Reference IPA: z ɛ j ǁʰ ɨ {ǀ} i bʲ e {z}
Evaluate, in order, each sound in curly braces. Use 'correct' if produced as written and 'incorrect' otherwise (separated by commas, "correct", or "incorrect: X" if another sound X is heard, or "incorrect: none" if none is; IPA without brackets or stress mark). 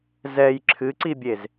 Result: correct, correct